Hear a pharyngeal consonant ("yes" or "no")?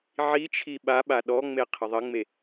yes